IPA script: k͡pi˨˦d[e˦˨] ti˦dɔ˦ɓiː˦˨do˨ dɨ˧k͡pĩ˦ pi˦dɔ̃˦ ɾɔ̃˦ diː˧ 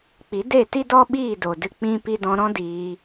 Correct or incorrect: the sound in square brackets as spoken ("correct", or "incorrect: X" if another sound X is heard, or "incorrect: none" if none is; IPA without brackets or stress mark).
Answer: correct